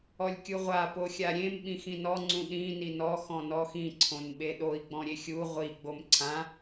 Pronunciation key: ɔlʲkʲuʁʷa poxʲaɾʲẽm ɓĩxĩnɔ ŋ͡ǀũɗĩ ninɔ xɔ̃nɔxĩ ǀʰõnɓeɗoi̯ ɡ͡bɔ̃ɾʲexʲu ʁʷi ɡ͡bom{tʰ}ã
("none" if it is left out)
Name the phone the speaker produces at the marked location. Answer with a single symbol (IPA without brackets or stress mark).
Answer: ǀʰ